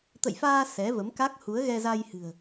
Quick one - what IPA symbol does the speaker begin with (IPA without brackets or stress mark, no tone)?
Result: t̪